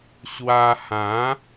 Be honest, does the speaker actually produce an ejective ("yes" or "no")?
no